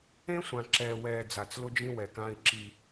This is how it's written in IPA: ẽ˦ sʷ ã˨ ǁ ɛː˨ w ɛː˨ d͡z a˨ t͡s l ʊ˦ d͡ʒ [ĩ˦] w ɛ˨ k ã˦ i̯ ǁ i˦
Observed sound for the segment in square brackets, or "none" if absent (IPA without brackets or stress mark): ĩ˦